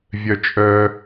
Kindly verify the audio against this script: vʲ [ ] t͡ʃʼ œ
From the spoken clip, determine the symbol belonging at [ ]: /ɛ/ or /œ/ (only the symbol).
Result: œ